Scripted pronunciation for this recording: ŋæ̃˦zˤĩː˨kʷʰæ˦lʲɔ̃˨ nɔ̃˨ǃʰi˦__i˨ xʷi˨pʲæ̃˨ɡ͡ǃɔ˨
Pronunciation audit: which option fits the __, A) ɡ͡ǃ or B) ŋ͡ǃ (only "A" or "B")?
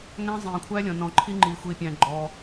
B